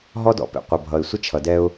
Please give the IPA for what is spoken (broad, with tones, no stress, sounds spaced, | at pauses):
ɦ ɔ˦ d ɔ̰˨ p ḛ˨ qʷ ʌ˨ bʱ ʌ˨ ɪ̯ sʷ ə˦ t͡ʃʰ ʌ˨ d ɛ˦ ʊ̯